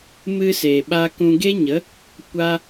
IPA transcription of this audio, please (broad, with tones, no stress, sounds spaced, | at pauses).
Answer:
m ɨ˧ s e˨ ɓ a˧ k ũ˧ ɡ e˦ ɲ ə˨˦ | kʷ a˦